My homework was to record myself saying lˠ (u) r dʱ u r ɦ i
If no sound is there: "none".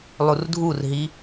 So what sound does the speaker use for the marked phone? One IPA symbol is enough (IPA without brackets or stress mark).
u